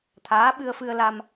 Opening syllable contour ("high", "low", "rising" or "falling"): rising